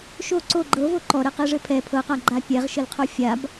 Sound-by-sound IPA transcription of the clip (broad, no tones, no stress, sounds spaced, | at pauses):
ʃ o ǀ o ɡ͡ǃ ɤ v o ǃ ɔ ɾ ɛ q e ʐ ɘ pʰ ɛ pʰ ɤ q a ɡ͡ǃ a pʲ ɛ ʁ ʃ ɘ l qʰ o fʲ a b